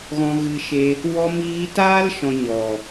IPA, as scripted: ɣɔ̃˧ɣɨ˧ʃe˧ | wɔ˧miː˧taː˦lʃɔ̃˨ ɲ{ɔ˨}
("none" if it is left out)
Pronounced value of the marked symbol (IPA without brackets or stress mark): ɔ˨